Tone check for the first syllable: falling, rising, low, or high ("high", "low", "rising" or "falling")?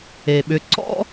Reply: low